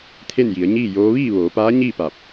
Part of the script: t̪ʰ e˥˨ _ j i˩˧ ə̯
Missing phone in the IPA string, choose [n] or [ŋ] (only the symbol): n